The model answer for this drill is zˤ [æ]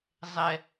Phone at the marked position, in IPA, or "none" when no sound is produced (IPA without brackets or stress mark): ɛ